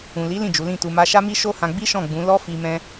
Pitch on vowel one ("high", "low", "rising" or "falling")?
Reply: low